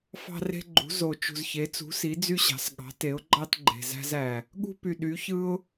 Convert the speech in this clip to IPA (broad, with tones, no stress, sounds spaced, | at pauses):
f ɑ̤˦ r e̤˦ ɡ͡ǃ ṳ˩˥ z o˨˩ t͡ʃ ṳ˨˩ z ç e˩˥ t͡s ṳ˩˥ s i˩˥ d͡z y˦ ɕ ɑ̤˩˥ s ɠ ɑ̤˩˥ t e˩˥ ʊ̯ ɡ͡ǃ ɑ˦ t ɡ͡ǃ e̤˨˩ z æ̤˦ z æ˨˩ | ɠ ṳ˦ p y˨˩ ɗ y˩˥ ç ɯ˦ ʊ̯